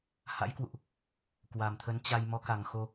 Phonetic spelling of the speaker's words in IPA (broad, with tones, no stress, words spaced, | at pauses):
ha̰˧˥jkwṵ˧˨ʔ | kwa˨˩mt̪ʰə˨˦n t͡ɕa˧j mɔ˨˦ka˨˩ŋxo˧